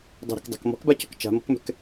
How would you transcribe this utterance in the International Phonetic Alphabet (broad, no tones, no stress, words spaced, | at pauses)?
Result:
dˤɛ̤ɾe̤kdˤa̤k mɔ̤kbacɔ̤k t͡ʃa̤mɔ̤kmɛ̤k